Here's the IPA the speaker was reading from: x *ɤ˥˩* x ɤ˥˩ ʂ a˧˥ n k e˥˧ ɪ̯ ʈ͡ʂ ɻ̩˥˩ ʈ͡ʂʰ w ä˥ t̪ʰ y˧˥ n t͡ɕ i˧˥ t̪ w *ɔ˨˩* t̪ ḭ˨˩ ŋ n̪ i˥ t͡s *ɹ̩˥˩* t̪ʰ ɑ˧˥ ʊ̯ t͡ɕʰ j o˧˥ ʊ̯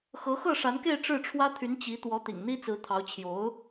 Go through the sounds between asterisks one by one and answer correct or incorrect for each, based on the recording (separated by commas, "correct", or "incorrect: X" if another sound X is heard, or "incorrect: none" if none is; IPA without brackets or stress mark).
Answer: incorrect: ɤ˧˥, incorrect: ɔ˧˥, incorrect: ɹ̩˧˥